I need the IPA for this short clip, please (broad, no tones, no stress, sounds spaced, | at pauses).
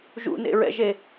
ʒ ṵ n ḛ ɹ ɛ̰ ʒ e